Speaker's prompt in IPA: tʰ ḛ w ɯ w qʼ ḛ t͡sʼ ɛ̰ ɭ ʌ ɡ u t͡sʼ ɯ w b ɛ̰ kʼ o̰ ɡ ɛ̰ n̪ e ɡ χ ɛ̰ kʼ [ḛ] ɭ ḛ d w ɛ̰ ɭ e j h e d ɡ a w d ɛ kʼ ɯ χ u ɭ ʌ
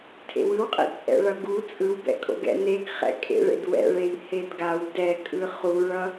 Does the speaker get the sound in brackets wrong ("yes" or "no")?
no